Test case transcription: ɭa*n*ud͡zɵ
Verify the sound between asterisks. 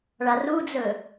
incorrect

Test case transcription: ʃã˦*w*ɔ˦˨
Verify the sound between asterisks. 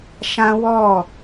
correct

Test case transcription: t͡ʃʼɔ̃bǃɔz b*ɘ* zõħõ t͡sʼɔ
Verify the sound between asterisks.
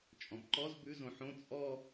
incorrect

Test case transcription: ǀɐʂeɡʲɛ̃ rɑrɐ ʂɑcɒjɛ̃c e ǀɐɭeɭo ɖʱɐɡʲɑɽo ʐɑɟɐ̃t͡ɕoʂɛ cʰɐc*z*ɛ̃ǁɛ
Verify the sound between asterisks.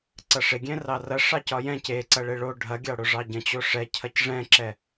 incorrect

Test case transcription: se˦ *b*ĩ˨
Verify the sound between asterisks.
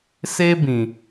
correct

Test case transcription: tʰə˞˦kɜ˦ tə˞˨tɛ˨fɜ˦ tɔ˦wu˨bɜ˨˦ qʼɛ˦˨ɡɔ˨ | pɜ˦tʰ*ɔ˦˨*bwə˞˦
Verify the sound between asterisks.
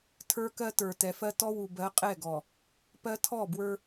correct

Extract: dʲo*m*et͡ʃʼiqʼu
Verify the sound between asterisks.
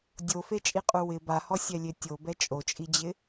incorrect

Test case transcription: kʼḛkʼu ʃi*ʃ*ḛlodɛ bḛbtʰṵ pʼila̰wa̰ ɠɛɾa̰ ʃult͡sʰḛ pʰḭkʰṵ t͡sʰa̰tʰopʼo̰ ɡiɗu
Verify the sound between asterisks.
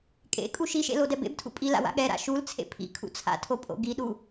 correct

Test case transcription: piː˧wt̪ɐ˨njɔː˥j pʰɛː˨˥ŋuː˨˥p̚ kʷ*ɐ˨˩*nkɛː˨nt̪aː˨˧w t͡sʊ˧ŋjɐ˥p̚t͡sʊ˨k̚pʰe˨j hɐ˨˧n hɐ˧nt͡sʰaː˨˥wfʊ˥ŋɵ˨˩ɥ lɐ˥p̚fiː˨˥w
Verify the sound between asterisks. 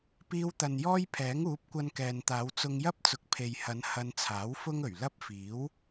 incorrect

